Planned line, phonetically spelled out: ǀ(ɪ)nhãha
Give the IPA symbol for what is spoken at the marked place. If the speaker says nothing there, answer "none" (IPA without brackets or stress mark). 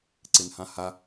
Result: ɪ